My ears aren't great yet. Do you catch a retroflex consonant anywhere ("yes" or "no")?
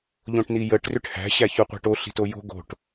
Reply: yes